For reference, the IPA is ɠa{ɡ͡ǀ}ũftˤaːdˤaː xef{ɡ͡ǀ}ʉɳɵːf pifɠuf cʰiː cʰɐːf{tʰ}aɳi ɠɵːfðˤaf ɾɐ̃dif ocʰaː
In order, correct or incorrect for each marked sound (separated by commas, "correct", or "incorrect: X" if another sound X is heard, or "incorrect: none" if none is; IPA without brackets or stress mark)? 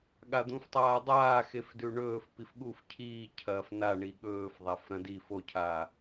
incorrect: d̪, incorrect: d, incorrect: n